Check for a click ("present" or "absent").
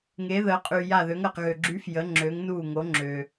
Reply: present